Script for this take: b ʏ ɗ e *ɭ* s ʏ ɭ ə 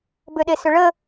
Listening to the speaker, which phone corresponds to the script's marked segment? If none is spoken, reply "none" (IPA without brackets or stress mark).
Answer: none